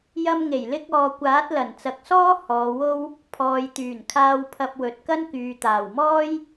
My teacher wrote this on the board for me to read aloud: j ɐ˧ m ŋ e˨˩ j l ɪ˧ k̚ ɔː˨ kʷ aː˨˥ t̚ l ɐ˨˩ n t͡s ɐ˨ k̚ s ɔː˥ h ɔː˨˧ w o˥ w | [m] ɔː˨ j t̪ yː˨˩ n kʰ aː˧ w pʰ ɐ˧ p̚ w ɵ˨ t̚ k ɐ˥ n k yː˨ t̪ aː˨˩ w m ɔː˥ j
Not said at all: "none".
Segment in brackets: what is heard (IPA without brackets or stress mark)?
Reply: pʰ